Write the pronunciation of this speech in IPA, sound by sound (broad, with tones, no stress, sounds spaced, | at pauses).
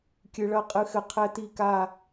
kʲ ɨ˧ ɭ ɐ˦˥ qʼ ɨ˧ x ɘ˧ qʰ ɛ˦˥ t i˥˧ k a˥˧